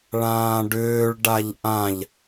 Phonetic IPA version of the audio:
ɭ ãː ɖ ʏː ɭ ɖ a ʎ ʔ ã ʎ

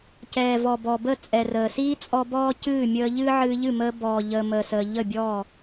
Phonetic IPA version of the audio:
c ɛː˨ v ɔ˨ b ɔ˨ b ə˦˨ t͡sʼ ɛ˨ r əː˨ s iː˦ t͡sʼ ɔ˦ b ɔː˦ c ɨː˦˨ mʲ əː˧ ʎ ɨː˦ ʕ ɨː˧ ʎ ɨ˦˨ m əː˧ b ɔː˨ ʎ əː˨ m əː˨ s əː˨ ʎ ə˦˨ bʲ ɔː˦˨

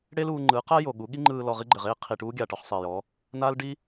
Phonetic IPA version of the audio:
ɽ e˦ l uː˧ ŋ͡ǃ ɯː˨˦ q a˦ j o˨ ɠ u˨˦ ɠ i˦ ŋ͡ǃ ɯː˧ l ɔ˧ ʁ i˦ ɡ͡ǃ ɘ˨ ʁ eː˦ qʰ i˨ ʈ uː˦ ɡʲ aː˨ ʈ ɔ˧ χ sˤ eː˨ j ɔ˨˦ | n aː˦ l ɖ i˦

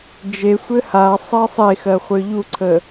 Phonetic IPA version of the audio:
d͡ʒ e sʷ ɘ h a sˤ ɜ sˤ e x ɜ χʷ ə˞ ʎ u ǀʰ ə

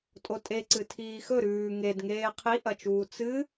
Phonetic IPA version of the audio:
tʼ o tʼ e ǀ ɨ tʰ iː x ɵ ɾ ʉː ŋ e d ŋ eː qʰ i ʔ ɐ t͡ʃ uː t͡s ɨ

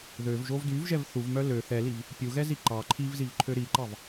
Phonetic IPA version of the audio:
ð ø v ʒ o v d y v ʒ ɛ v θ u v m œ l ø θ ɛ l i v | pʲ u ɣ ɛ z i ǃ ɑ ǃʰ i v z i v ǃʰ ø ɾ i ǃ ɑ v

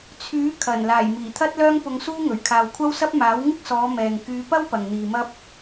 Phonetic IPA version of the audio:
t͡sʰ yː˨˥ kʰ ɐ˨˩ n l aː˨˩ j m iː˨˩ t̪ʰ ɐ˥ t̚ l œː˥ ŋ p ʊ˧ ŋ s uː˥ ŋ ɵ˨˩ ɥ kʰ aː˨ w kʷʰ ɐ˥ w s ɐ˥ p̚ m aː˨˥ w ŋ ɪ˥ k̚ s ɔː˨˧ m ɛː˨ ŋ k yː˨˧ p ɐ˥ w p ɐ˨ ŋ n̪ iː˨ m ɐ˥ p̚

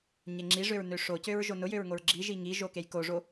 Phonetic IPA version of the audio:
ɲ e ŋ͡ǁ i ʐ ø ɹ n ø ʂ o c ø ɹ ʒ o n ʊ j ø ɹ ŋ o ɹ ɡ͡ǁ i ʒ i ŋ i ʒ o k e j k o ʐ o

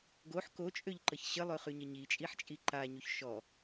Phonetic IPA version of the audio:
ɡ o ħ k o t͡ʃʼ ø ʎ ǃ ə ç ɕ ə lˠ ø χ y ɲ ə ɲ i t͡ʃʼ i ħ t͡ʃʼ i ǃ a ɲ u ç ʃ ɔ

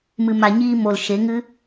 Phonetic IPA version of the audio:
m ɨ˨ m a˨ ɲ iː˧ m o˨ l ʃ e˨˦ ŋ ɨ˦

